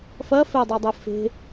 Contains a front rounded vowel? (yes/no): no